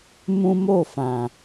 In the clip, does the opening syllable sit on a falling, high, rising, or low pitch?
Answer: high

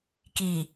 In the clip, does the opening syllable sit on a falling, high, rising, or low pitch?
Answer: low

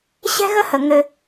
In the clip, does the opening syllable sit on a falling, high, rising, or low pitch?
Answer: high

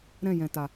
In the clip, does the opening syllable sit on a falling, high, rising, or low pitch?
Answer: falling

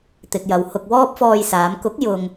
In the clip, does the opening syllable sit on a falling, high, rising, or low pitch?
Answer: low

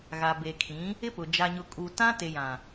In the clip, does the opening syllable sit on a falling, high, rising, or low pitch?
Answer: low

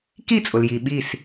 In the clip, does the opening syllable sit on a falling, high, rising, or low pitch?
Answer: falling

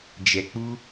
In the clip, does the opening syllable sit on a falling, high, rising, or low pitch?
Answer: low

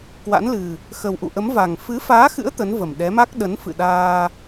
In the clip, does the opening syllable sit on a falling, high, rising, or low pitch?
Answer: rising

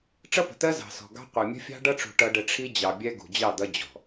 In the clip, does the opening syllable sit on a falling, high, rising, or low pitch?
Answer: high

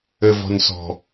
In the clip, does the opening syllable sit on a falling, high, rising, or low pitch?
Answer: low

